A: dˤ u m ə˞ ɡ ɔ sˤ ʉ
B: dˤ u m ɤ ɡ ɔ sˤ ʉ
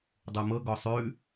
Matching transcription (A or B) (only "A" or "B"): B